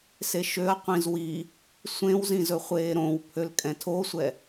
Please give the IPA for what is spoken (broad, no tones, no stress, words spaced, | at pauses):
seʃøɐ̯qʷĩz wi | sʷẽwzĩ zɵχʷeːɾõwpʰøl kʼɛ̃tʰosʷɛ